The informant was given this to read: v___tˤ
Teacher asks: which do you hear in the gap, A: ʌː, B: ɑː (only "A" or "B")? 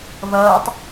A